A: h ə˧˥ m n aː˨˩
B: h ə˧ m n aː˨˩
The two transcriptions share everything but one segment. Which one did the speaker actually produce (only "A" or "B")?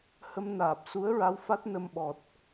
B